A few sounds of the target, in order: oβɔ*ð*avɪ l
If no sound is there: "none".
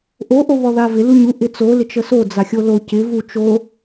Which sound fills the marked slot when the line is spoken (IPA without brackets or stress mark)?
ð